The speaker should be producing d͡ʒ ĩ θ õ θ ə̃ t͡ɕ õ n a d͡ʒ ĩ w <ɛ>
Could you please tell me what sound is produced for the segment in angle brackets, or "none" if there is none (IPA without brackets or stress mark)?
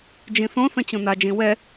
ɛ